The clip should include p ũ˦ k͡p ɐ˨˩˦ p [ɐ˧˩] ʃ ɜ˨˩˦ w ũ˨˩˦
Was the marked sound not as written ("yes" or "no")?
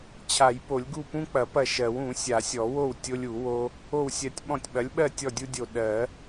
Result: no